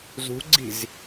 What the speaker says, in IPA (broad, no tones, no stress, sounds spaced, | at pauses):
z ṳ ɡ͡ǀ i̤ z